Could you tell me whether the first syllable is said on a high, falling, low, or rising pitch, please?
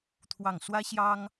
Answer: falling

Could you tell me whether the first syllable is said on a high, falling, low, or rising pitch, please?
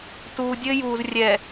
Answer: low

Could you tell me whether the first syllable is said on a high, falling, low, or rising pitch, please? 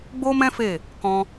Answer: high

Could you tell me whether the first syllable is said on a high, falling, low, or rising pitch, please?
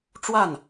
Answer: falling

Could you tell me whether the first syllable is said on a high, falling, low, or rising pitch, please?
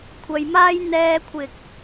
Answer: low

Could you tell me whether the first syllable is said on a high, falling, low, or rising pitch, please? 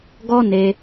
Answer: high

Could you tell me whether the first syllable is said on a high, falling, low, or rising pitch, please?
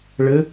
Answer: rising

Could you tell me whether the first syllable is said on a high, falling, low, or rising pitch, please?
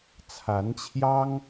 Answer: rising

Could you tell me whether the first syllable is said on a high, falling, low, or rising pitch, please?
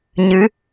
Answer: rising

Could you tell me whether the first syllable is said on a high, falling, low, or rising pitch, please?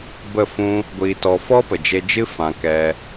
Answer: falling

